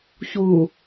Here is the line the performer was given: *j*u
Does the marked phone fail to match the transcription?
yes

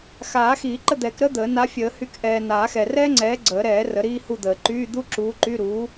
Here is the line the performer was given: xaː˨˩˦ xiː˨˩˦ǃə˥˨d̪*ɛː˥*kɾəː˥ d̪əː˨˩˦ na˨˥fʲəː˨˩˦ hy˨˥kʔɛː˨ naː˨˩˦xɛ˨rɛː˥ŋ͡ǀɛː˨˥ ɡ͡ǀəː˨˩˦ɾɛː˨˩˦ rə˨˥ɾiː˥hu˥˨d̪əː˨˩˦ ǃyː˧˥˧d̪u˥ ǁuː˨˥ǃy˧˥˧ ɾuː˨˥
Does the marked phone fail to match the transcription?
yes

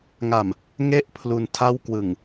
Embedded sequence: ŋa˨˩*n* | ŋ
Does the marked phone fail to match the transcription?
yes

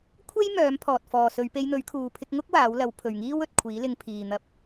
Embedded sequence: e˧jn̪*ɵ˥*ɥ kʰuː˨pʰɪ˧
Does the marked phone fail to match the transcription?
yes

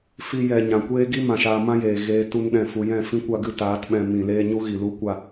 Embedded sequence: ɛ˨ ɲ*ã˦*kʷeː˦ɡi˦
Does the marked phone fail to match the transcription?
yes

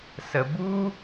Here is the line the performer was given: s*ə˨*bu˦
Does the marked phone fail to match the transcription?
no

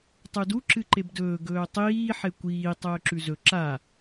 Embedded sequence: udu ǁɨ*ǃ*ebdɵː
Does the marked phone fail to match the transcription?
no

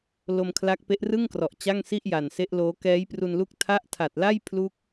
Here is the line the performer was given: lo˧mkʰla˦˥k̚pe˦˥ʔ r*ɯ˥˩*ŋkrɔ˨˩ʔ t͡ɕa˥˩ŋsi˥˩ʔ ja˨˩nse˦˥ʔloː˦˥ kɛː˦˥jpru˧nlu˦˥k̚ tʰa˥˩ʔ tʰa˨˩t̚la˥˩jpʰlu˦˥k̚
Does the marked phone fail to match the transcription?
no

